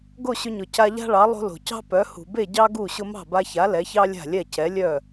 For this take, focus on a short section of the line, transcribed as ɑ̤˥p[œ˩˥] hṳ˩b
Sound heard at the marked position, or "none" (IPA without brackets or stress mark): œ˩˥